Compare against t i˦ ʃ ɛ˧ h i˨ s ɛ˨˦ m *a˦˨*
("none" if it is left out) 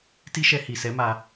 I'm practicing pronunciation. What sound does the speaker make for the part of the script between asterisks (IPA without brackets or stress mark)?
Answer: a˧